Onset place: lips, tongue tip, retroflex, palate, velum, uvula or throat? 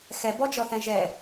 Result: velum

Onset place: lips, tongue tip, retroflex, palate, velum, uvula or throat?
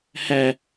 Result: throat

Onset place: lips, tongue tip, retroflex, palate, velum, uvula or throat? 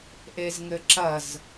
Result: throat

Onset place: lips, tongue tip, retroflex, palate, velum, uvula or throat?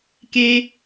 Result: velum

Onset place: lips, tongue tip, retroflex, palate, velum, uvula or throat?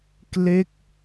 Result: velum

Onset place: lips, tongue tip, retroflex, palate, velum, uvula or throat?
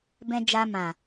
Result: lips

